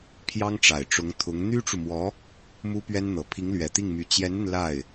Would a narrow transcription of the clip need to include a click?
no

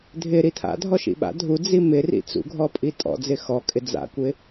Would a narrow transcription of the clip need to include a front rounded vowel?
no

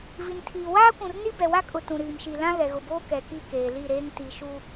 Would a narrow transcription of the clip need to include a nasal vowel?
yes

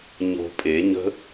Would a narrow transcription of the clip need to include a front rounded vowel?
no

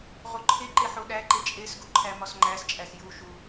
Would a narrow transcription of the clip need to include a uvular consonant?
yes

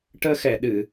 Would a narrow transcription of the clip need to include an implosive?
yes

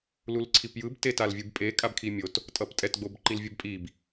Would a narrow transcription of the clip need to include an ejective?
yes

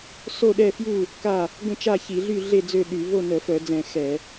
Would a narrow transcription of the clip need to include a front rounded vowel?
yes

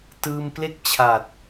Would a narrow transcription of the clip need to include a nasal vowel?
no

